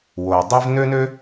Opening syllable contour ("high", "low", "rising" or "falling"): low